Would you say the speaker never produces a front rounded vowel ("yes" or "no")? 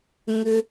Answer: no